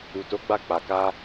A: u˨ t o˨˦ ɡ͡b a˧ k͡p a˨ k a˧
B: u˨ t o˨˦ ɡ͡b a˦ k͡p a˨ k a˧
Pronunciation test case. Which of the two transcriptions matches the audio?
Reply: A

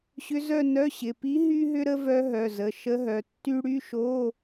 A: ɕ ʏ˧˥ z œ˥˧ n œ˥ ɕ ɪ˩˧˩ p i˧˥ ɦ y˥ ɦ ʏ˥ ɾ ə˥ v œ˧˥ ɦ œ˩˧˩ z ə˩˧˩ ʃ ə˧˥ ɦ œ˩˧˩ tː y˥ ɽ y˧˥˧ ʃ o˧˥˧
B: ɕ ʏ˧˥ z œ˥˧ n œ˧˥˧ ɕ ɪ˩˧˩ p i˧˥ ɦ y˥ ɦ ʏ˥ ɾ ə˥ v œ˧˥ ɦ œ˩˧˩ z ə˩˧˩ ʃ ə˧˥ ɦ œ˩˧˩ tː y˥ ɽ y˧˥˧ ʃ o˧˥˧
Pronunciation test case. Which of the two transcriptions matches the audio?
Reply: B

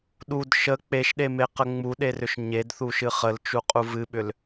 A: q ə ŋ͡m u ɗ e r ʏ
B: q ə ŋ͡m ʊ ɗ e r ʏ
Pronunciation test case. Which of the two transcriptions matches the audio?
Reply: A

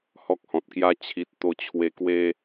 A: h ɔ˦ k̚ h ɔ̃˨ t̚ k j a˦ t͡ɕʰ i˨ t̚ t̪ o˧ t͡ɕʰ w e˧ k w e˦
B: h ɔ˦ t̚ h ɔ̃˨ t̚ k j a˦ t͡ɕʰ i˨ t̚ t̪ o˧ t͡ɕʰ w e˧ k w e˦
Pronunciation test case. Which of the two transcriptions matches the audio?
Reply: A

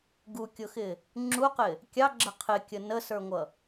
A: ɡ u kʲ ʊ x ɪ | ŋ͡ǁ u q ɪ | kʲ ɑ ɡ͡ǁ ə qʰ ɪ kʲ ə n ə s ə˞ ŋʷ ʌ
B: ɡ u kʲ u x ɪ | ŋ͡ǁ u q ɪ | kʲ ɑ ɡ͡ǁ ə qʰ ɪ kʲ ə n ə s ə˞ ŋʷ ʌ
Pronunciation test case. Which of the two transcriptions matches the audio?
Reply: A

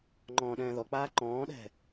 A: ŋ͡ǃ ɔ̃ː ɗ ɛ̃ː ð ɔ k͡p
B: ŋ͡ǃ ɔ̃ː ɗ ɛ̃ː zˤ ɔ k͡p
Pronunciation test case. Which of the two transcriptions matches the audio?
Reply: A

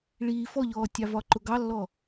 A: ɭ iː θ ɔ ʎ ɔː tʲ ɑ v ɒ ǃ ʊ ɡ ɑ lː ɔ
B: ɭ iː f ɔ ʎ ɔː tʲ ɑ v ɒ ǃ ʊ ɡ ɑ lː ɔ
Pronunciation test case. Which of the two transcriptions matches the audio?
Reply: B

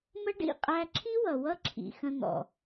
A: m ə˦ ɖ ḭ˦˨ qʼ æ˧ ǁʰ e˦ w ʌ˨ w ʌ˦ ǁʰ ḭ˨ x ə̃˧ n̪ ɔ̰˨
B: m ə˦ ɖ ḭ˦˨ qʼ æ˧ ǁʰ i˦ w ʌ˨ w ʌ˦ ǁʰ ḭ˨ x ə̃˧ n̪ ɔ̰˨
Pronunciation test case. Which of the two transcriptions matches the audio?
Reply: B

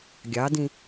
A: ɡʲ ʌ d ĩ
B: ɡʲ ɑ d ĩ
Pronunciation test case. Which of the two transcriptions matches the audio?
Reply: B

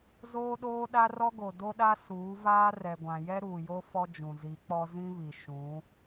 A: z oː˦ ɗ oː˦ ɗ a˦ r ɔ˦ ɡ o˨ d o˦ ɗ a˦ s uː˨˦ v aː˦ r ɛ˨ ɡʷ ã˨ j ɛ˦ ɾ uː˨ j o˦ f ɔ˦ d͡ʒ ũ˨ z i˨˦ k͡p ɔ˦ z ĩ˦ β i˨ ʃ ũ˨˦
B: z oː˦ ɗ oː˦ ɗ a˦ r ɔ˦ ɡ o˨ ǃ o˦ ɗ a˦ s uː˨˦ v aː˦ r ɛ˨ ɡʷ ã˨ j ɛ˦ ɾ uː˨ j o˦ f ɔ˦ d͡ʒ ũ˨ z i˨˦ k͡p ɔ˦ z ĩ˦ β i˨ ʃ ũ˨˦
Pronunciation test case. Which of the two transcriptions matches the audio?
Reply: A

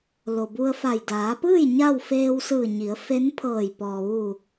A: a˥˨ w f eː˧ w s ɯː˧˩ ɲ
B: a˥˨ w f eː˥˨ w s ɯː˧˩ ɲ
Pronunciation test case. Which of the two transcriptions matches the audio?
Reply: A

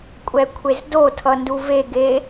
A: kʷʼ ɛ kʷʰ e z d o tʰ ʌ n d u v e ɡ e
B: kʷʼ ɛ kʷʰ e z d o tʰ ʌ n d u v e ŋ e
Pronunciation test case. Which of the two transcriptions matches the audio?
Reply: A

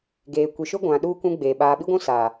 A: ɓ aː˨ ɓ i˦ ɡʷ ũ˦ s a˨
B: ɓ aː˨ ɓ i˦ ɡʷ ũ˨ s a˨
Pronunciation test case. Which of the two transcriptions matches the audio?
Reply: A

